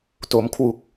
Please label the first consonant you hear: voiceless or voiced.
voiceless